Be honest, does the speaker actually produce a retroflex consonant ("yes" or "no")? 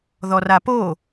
no